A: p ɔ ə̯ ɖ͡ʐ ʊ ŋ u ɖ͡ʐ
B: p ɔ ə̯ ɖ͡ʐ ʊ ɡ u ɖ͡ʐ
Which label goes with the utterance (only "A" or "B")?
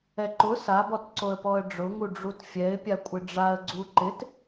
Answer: A